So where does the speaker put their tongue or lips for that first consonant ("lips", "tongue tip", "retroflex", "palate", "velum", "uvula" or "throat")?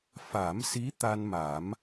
lips